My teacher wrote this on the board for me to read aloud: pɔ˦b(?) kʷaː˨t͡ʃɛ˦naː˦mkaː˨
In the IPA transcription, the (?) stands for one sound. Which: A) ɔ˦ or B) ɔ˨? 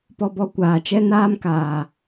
A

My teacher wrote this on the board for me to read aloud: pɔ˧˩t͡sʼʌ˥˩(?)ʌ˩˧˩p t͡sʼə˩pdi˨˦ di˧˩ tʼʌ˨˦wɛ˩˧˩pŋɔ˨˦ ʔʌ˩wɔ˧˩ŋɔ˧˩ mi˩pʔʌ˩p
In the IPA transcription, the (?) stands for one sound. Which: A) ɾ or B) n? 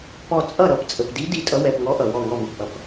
A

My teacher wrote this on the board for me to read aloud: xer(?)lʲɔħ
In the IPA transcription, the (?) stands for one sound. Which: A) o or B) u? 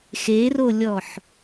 A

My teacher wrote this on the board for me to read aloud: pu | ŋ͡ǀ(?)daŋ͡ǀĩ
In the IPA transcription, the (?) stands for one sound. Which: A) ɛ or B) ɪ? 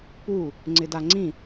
B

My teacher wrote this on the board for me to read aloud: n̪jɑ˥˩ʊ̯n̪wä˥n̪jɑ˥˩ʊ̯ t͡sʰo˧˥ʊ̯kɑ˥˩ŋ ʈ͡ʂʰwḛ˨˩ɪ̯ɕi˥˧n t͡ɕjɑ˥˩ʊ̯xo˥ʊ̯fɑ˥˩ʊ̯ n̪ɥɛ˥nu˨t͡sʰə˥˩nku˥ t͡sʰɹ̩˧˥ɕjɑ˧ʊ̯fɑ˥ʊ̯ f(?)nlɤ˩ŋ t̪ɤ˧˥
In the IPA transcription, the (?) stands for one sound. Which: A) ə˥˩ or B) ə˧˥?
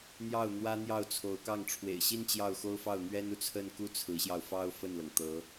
A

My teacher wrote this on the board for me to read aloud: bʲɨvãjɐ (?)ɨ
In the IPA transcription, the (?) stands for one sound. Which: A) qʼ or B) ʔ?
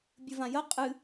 A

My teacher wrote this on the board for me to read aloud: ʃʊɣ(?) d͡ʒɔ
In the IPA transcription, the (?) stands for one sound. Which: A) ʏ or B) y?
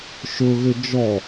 A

